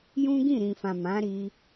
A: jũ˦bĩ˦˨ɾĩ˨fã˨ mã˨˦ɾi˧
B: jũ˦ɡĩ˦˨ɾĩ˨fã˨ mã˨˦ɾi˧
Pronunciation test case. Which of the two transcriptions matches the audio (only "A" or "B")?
B